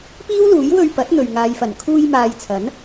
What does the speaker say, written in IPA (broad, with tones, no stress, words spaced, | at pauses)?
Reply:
piː˥wluː˨˥j wɵ˧ɥpɐ˨˥t̚n̪ɵ˨ɥ ŋaː˨jfɐ˨˩n kʰuː˧jmaː˨j t͡sʰɐ˨˥n